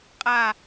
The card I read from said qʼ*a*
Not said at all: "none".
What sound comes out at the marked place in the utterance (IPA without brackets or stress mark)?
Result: a